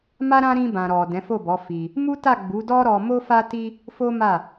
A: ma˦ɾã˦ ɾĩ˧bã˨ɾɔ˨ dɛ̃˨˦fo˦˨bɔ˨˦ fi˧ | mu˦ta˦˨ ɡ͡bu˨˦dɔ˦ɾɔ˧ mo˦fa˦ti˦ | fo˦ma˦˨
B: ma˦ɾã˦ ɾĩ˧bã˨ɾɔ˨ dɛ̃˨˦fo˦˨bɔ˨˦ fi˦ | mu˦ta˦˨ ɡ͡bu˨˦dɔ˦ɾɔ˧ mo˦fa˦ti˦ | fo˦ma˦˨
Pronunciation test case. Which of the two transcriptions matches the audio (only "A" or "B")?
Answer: A